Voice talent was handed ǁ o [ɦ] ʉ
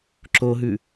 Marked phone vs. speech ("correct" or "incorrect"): correct